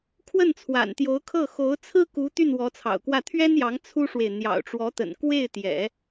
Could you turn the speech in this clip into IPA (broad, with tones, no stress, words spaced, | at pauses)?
kʰwə˥˩nt͡sʰwa̰˨˩nt̪jo˧˥ʊ̯kʰɤ˥˩ xo˧˥ʊ̯t͡sʰɹ̩˥ku˧˥ t̪y˥˩nwɔ˧˥t͡sʰɑ̰˨˩ʊ̯kwä˥˩ t̪ʰɥɛ˥njɑ˧˥ŋ t͡sʰu˥ʂwe˨ɪ̯ n̪jɑ̰˨˩ʊ̯ʈ͡ʂwɔ˧˥t̪ə̰˨˩n kwe˥˩ɪ̯t̪jɛ̰˨˩˦